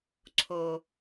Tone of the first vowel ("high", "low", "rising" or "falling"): low